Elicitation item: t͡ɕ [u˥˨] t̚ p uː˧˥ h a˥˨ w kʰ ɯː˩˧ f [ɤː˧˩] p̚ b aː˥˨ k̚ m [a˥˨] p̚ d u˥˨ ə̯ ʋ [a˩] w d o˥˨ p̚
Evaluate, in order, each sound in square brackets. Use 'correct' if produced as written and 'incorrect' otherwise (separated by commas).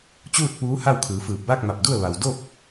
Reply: incorrect, incorrect, incorrect, correct